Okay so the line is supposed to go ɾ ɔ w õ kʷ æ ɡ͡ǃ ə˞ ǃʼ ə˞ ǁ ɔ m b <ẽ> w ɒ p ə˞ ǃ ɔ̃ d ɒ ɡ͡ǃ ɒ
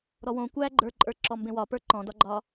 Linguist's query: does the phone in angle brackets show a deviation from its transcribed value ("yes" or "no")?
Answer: no